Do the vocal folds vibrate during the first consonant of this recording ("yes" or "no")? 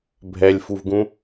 yes